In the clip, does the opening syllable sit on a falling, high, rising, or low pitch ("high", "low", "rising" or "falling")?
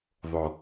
low